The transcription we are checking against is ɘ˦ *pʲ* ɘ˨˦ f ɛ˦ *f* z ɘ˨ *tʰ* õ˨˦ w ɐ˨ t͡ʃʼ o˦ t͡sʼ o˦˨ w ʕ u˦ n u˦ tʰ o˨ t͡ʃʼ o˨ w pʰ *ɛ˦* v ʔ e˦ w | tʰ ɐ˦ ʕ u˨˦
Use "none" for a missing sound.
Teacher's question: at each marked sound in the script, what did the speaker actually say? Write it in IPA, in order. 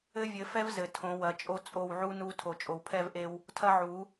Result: vʲ, v, tʰ, ɛ˦

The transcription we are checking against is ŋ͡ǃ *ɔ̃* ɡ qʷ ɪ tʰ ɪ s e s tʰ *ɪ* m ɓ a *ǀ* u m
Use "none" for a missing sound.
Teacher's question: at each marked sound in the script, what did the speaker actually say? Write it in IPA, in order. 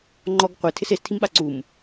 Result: ɔ, i, ǀ

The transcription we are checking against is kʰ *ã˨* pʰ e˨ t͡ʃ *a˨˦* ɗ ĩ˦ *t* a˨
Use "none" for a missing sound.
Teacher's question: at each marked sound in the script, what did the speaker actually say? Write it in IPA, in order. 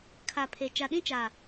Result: a˨, a˨, t͡ʃ

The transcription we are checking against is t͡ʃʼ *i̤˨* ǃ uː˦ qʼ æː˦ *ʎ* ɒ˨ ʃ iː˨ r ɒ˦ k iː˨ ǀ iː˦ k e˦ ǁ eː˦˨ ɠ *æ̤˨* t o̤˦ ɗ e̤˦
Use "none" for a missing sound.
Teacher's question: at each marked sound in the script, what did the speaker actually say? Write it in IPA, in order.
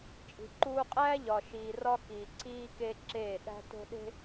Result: i̤˨, ʎ, æ̤˦

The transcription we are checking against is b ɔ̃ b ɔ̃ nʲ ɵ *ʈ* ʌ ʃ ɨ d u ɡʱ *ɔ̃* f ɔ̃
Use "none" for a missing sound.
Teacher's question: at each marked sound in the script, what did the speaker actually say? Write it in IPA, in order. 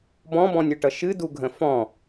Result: ʈ, ə̃

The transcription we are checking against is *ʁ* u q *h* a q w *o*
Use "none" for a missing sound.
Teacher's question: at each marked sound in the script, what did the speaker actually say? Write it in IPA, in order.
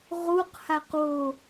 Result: ʁ, h, o

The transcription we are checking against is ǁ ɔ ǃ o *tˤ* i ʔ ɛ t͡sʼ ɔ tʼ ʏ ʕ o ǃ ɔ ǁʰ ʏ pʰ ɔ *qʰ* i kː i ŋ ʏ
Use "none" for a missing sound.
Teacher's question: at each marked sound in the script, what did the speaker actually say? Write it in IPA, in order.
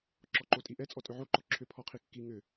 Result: tʼ, qʰ

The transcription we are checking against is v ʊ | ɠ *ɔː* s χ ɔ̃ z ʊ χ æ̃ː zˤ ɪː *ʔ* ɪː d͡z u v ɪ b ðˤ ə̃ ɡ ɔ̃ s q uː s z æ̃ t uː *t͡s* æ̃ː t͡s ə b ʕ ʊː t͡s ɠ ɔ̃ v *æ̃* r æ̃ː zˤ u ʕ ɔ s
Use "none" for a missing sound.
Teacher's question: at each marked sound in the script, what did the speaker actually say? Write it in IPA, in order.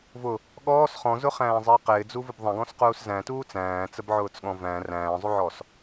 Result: ɔː, q, t͡s, æ̃

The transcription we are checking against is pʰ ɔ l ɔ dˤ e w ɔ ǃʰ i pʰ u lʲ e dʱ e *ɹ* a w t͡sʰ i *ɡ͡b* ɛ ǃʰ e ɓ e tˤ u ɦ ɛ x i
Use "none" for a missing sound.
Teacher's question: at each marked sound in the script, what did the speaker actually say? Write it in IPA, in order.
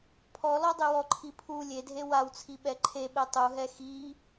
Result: w, ɓ

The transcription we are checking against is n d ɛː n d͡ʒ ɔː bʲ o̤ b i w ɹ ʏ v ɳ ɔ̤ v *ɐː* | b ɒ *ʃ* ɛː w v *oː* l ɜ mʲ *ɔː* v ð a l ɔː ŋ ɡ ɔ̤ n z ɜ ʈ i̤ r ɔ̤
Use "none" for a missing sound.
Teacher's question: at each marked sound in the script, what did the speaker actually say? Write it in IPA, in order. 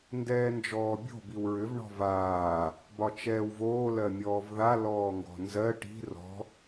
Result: aː, t͡ʃ, oː, ɔː

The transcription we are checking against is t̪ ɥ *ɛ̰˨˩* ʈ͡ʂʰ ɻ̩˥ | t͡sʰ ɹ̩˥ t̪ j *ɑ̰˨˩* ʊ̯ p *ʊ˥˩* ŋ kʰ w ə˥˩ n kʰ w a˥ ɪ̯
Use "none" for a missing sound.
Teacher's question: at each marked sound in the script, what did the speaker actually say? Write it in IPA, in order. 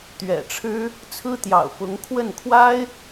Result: ɛ̰˨˩, ɑ̰˨˩, ʊ˧˥

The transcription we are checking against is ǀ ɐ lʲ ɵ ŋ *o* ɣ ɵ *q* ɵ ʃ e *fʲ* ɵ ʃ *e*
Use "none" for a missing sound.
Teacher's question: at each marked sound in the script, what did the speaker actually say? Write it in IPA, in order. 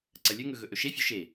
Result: ɵ, ʔ, fʲ, e

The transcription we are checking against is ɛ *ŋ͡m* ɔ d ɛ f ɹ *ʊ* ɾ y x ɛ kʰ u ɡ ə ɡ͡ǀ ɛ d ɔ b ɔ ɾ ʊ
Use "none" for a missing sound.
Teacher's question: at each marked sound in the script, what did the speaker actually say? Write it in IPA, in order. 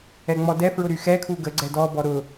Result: ŋ͡m, ʊ

